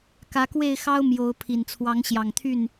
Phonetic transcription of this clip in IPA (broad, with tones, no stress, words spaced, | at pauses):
kä˨˦kwe˥˨ɪ̯xɑ˦ʊ̯ mjo˨˦ʊ̯ pʰi˨˩nt͡sʰwɑ˨˦ŋɕjɑ˨˩ŋt̪ʰy˥˨n